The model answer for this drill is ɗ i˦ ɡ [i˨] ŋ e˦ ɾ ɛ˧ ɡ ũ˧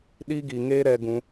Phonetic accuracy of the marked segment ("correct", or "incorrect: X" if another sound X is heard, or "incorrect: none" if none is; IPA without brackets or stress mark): correct